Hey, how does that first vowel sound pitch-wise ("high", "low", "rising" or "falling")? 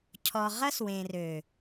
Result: low